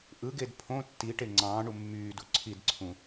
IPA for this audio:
ʔ ɯ ɡ e d pʰ õ tː i ʈ e ŋ͡ǀ ɑ̃ː ɳ u mː yː d u ǀʰ i d ǀʰ ũ

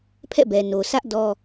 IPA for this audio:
pʰ ɛ̰˦˨ b ɛ˨ n o˨ sʰ ä˦ ʔ d ɔ˦

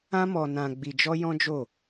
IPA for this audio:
ã˦ m ɔ˧ n ã˧ ɡ͡b i˧ d͡ʒ ɔ˦ j ɔ̃˦ d͡ʒ o˦˨

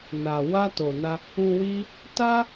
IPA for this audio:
n a˨ w a˧ t o˨ n a˧ | ũ˧ w i˦ | t a˦

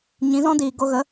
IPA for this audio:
ɲ ĩ˨˦ z ɔ̃˦ d iː˨ ɡ o˧ ɣ ə˨˦

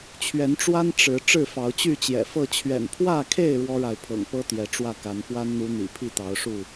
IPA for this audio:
t͡ɕʰ ɥ ɛ˨˦ n ʈ͡ʂ w a˦ n ʈ͡ʂ ɻ̩˨˦ ʈ͡ʂ ɻ̩˥˨ f ɑ˨˦ ʊ̯ t͡ɕ y˥˨ t͡ɕ j ɛ̰˨˩ f ɤ˥˨ t͡ɕʰ ɥ ɛ̰˨˩ n pʰ w ä˥˨ kʰ e˥˨ ɪ̯ ɻ w ɔ˦ ɻ a˨ ɪ̯ pʰ ɤ̰˨˩ ŋ p ɤ˦ t̪ j ɛ˨˦ ʈ͡ʂ w ä˥˨ k a˨˦ n p w a˦ n n̪ u˨˦ n̪ ḭ˨˩ pʰ i˥˨ t̪ ɑ˨˦ ʊ̯ ʂ u˥˨

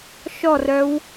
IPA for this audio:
ʃ ɔ r œ w

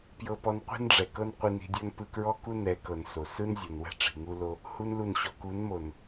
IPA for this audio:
p j ɤ˦ p ɔ˦ n qʷ i̤˦ n ɖ͡ʐ ɛ˨ k ɤ˦ n qʷ i˧ n i̤˧ dʲ ɔ˦ n p ɯ˧ k ɹ ɔ˦ k u˦ n ɛ˨˦ k ɤ˨ n s o˨ s ɯ˦ n zʲ o˨ n w ɛ̤˦ ʈ͡ʂ i̤˨ ŋ u˦ l o˦ | h u˦ n l u˦˨ n ɕ ɔ˧ k u˨˦ n m o˨ n

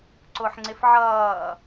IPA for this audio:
ǀ ʊ ħ ŋ͡ǀ ɪ f ʕ ʌː

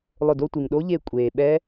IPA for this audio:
lˠ ʊ˧˩ d o˥˧ tʷ i˩ ŋ ɗ o˦˥ ʎ e˧˩ kʷʼ eː˩ ɓ ɛ˦˥

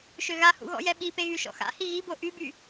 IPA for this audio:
ʃ ø ɣ a h ṵ ɣ ɔ̰ j ɛ ɓ i p e ɣ y ʃ ɔ̰ x a̰ h i ɣ i b o ʔ y b y

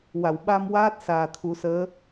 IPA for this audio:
w a˨˩˨ w ɓ a˧ m w aː˦˥ t̚ s aː˨˩ t̪ʰ u˨˩˦ s əː˧˥

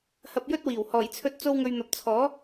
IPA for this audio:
h ɐ˧ p̚ j ɵ˥ t̚ w iː˨˩ w h ɔː˨˩ j t͡sʰ ɵ˧ t̚ t͡s o˧ w ŋ ɵ˨ ɥ n̪ ɐ˨ p̚ t͡sʰ ɔː˨˥

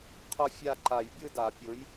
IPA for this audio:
qʰ ʊ˥˧ fʲ a˥˧ ǃ a˨˩˦ j bʲ ɯ˥˧ d a˨˩˦ pʲ ʊ˨˥ j

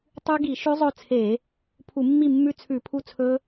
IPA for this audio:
tˤ ʉ˦˥ ɡ i˧˩˧ ʃ ʉ˦˥ zˤ ɵ˥˨ t͡sʰ e˧˩˧ | pʰ u˧˩˧ mː i˥˨ mː ʉ˥˨ t͡sʰ ʉ˧˩˧ pʰ u˥˨ t͡sʰ ɵ˦˥

